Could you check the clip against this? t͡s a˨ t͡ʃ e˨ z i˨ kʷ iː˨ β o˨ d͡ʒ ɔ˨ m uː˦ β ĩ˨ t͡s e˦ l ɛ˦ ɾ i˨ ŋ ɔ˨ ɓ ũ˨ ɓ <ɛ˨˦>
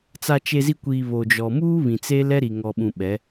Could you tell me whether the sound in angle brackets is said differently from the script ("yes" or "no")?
no